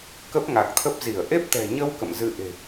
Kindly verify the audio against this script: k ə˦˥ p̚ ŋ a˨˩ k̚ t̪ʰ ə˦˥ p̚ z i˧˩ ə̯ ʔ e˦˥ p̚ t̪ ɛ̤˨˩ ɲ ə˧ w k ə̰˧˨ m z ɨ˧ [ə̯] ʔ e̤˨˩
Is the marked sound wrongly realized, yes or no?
yes